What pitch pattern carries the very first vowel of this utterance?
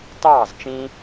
falling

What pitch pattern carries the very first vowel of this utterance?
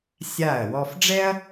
falling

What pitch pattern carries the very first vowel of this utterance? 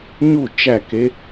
falling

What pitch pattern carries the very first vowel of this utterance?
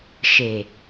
low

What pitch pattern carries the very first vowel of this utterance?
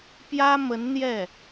high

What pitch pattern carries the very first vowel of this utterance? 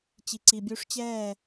low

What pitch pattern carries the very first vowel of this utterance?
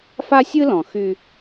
high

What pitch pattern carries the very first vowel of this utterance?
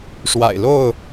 low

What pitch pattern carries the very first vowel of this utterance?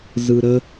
high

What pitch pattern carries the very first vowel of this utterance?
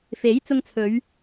rising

